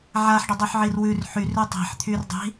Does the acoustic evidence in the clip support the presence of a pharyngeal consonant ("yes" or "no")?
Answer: yes